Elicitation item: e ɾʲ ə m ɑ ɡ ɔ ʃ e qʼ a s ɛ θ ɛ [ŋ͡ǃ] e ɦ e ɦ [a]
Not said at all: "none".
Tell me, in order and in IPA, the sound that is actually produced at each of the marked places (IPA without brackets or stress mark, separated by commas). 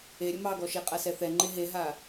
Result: ŋ͡ǃ, a